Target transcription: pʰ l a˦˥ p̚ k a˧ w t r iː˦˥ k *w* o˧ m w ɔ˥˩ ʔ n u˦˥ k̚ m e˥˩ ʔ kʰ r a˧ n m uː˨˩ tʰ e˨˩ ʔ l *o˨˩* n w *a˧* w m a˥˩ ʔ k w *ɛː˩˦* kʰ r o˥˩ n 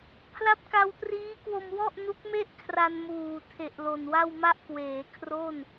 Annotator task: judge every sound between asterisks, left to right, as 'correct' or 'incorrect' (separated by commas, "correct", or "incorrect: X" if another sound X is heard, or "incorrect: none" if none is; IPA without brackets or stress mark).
correct, correct, incorrect: a˥˩, incorrect: eː˩˦